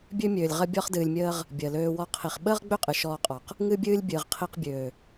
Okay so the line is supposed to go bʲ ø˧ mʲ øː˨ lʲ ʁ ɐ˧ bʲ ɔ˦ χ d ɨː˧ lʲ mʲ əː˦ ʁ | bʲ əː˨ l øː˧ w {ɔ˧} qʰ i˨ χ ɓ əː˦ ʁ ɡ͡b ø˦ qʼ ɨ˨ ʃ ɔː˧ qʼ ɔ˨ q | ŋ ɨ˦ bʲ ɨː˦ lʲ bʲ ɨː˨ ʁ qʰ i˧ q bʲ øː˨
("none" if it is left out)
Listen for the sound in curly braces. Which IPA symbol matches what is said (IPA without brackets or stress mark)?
ɔ˧